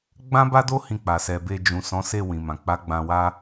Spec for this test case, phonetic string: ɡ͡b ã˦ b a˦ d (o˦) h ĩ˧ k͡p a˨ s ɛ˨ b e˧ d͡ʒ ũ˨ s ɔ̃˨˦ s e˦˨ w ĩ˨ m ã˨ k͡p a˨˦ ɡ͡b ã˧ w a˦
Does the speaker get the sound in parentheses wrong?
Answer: no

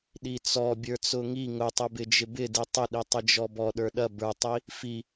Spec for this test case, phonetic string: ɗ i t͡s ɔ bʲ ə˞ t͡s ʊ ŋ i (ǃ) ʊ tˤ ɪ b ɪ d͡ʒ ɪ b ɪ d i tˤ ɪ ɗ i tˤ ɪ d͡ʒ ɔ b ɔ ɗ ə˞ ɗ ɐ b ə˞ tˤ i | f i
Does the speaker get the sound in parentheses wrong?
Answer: yes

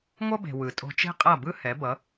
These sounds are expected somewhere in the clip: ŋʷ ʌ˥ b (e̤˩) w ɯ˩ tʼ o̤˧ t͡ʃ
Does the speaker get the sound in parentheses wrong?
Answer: no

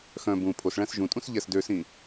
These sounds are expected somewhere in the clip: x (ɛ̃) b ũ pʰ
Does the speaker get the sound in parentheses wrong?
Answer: yes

